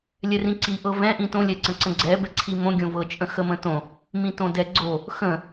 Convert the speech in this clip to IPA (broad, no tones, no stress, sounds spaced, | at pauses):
lʲ ɛ r ĩ ǀ i ʔ ɤ v ɛ̃ ʔ ĩ t õ lʲ ɛ ǀ ə̃ ǀ ə̃ ɡ͡ǀ ɛ b ɛ ǀʰ i m õ ɡʲ õ v ɤ t͡ʃʼ ə̃ x ə m ə̃ t õ | m ĩ t õ d ɛ ɡ͡ǀ o | x ə̃